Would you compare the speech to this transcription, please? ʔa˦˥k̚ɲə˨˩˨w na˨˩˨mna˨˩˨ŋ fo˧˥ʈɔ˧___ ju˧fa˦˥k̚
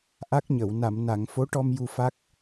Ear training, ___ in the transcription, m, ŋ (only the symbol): m